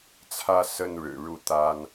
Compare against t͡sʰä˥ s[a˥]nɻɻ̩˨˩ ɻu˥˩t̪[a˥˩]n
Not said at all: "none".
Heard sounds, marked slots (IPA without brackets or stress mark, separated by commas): ə˥, a˥